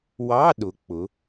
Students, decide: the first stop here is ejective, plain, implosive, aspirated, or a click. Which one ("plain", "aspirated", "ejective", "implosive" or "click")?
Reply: implosive